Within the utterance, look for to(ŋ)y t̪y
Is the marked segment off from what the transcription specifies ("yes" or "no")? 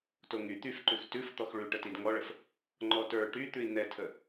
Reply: no